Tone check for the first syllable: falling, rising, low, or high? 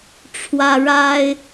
high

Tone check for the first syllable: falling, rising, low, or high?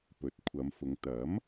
rising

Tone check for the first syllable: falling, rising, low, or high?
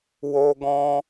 high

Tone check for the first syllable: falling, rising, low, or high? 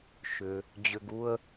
low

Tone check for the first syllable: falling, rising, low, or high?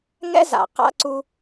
high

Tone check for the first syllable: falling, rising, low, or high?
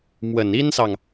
low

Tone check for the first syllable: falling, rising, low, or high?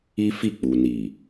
high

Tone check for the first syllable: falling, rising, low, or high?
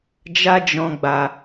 high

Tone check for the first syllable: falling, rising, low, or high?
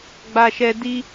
high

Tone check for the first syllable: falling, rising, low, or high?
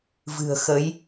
low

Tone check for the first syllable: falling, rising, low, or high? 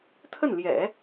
falling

